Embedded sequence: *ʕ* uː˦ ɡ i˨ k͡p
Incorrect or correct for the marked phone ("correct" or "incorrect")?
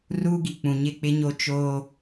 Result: incorrect